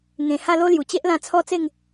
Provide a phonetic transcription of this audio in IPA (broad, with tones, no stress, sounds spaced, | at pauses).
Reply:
ŋ ẽ˨˩ h a˥˧ l o˦ l j u˨˩ t͡ɕ e˦ ʔ l ã˧ t͡sʰ ɔ˦ t͡s e˥˧ ŋ